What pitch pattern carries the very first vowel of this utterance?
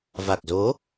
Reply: low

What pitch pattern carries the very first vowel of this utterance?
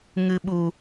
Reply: low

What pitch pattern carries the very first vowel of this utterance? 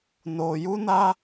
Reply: low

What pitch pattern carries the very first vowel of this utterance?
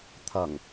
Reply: low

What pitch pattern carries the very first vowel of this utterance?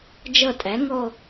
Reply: falling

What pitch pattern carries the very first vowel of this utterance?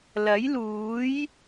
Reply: rising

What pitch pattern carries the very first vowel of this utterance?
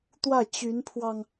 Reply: falling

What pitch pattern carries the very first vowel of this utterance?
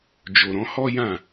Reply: low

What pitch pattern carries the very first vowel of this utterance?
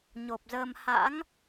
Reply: low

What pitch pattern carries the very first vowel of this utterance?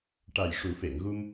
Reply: low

